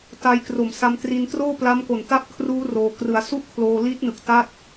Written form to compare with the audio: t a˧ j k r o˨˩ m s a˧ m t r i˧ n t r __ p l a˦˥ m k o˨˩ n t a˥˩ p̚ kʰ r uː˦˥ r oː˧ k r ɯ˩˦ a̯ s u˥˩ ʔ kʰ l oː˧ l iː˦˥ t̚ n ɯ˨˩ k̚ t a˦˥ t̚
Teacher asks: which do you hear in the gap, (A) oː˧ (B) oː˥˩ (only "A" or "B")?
B